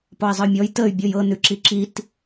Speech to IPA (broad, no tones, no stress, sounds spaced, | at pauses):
p ɔ i̯ zˤ ə y̯ mʲ ɔ j t ə y̯ bʲ ɤ j ɤ n ʉ ǁ i ǁ i t